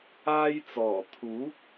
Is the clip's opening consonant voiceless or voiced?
voiced